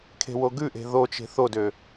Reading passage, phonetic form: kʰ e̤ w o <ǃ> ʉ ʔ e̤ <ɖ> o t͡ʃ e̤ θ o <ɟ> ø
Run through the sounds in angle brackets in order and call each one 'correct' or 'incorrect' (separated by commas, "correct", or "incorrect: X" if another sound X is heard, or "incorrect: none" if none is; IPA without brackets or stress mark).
incorrect: ɡ, incorrect: ð, incorrect: d